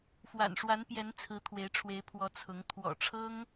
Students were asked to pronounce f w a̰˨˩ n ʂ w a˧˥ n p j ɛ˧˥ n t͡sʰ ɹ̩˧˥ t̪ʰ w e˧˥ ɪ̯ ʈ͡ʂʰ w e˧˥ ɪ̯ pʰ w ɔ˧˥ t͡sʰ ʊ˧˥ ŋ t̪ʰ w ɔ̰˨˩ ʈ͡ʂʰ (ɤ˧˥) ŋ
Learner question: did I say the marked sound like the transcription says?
no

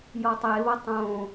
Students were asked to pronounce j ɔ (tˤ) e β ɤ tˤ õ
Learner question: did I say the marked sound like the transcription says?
yes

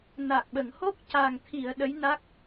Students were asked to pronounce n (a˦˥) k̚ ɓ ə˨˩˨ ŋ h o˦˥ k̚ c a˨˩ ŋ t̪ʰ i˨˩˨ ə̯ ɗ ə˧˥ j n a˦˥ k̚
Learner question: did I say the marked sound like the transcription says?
no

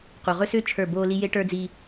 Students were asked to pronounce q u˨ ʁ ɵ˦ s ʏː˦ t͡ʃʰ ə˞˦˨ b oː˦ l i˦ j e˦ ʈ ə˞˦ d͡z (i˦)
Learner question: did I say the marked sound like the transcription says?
yes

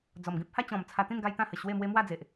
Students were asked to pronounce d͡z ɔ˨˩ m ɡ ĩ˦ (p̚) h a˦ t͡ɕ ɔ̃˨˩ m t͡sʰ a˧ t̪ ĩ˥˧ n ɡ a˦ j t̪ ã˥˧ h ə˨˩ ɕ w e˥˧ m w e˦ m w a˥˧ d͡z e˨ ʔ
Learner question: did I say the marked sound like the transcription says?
yes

